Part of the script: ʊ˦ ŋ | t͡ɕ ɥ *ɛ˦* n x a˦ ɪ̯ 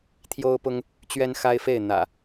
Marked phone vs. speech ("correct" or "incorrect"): correct